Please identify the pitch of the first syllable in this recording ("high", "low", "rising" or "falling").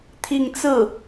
falling